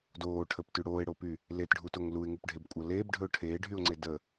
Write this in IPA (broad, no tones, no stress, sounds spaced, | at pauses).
d oː ʈʰ ə p t y ɽ oː ɪ̯ ɽ o p y | l e t ɖʱ u t o ŋ l u ɪ̯ ŋ u p ɖʱ e b kʷʼ ʌ l eː b ɖʱ ɵ ʊ̯ ʈʰ eː ɖʱ y ʊ̯ ŋ͡ǀ e d ə